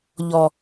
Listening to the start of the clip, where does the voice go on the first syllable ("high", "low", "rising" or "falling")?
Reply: low